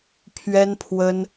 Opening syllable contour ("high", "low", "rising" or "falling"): high